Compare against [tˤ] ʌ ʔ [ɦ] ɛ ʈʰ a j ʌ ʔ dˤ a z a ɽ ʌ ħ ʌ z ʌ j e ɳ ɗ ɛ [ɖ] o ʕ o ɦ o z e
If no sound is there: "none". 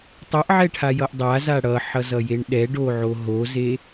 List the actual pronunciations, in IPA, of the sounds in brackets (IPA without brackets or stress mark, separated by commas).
tˤ, ʕ, ɖ